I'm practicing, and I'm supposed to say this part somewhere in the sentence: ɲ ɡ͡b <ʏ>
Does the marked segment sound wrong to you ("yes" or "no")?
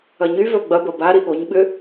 no